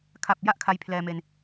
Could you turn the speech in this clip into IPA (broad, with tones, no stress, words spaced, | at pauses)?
kʰa˨˩p̚ ja˥˩ʔkʰa˧jpʰlɛː˧me˧n